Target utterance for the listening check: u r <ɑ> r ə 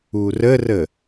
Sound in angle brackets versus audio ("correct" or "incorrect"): incorrect